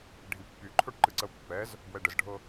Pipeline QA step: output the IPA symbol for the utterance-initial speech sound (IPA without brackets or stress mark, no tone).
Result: ɖʱ